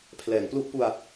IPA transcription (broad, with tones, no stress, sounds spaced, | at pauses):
pʰ l ɛː˩˦ ŋ p l u˥˩ ʔ p u˧ a̯